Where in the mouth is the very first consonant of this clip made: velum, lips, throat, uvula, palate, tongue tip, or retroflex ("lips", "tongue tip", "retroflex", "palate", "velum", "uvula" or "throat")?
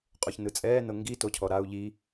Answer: uvula